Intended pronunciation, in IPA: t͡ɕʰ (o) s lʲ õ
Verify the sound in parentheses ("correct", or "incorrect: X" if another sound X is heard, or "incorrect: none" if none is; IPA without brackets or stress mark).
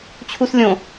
incorrect: u